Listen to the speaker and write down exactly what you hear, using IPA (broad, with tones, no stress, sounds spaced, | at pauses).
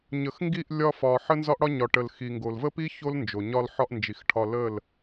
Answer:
ɲ ə˨ x ŋ ɡ i˦˨ ʔ lʲ ɒ˧ f ɒ˨ ħ ə˦ n z ɒ˦ ʔ ɽ ɒ˦ ɲ ɒ˨ ʈ ə˨ l x i˨ ŋ ɡ o˨ l v ə˦ p i˦ ç o˦ l n d͡ʒ o˨ ɲ ɒ˧ l ħ ɒ˧ ʔ n d͡ʒ i˨ x ʈʰ ɒ˧ l ə˦˨ l